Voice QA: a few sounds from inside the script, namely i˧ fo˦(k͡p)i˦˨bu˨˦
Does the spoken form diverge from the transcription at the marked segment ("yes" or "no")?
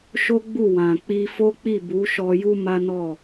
no